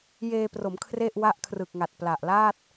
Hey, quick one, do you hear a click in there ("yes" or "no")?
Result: no